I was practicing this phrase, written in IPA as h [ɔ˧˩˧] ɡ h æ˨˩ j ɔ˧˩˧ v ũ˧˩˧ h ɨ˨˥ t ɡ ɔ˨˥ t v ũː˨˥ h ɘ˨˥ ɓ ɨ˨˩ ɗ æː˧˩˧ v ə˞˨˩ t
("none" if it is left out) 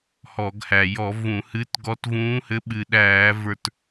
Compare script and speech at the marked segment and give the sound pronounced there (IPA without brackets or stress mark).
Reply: ɔ˧˩˧